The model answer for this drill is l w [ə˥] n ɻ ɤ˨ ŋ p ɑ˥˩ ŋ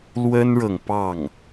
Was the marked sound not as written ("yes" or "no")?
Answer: no